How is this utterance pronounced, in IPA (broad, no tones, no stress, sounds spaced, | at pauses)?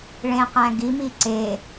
ɭ ẽ q æ̃ ɡ i m i ǀ e